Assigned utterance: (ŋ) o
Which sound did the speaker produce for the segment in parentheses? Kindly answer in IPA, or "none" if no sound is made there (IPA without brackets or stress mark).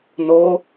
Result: n